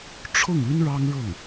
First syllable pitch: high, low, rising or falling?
falling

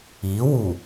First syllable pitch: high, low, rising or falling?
rising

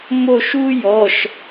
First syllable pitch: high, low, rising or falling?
falling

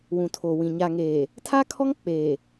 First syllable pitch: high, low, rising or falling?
low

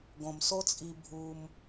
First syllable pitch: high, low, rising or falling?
low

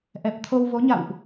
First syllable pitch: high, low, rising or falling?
low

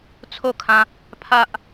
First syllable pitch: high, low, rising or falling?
falling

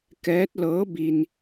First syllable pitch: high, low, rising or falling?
rising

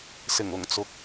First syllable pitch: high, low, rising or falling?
low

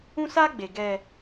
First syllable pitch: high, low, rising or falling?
high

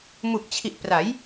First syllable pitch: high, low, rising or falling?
low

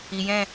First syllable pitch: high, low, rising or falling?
low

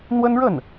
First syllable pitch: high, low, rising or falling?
high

